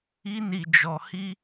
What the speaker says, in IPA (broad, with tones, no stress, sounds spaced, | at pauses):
i˦ n i˧ d͡ʒ ɔ˧ h i˦